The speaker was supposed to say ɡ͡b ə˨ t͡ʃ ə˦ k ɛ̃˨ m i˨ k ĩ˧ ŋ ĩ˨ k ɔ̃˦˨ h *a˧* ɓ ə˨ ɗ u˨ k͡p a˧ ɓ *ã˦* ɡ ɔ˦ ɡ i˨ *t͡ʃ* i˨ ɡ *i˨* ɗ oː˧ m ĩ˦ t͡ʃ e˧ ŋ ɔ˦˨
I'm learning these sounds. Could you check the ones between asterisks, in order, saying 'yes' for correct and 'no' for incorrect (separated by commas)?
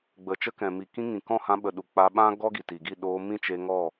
no, yes, no, no